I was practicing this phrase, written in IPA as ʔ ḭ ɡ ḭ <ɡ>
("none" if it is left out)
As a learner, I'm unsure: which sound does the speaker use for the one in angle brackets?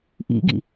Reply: none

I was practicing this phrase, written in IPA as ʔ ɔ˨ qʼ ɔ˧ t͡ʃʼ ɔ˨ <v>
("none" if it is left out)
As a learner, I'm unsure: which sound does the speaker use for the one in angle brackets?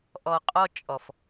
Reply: f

